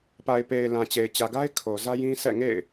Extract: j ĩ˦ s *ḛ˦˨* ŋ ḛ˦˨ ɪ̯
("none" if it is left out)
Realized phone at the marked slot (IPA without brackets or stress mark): ɛ̰˦˨